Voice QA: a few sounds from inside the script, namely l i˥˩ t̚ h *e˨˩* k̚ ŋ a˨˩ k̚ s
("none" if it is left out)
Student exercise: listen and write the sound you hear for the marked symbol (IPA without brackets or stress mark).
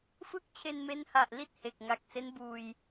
e˨˩